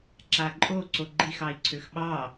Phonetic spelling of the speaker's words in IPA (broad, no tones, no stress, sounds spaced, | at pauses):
ǁ a ǃʼ o ǀ o ɡ͡ǃ i x ɑ i̯ ǀʰ ø x ɓ ɑ